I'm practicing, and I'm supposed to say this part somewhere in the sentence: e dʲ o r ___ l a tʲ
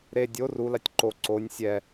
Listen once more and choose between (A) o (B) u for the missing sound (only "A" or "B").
B